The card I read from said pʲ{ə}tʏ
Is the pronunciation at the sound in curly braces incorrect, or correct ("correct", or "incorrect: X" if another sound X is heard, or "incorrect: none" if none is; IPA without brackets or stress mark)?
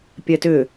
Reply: incorrect: ɛ